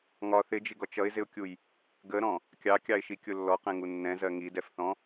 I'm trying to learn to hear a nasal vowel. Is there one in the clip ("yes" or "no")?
yes